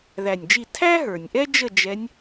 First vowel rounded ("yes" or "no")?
no